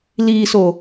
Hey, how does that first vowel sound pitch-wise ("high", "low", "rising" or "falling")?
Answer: low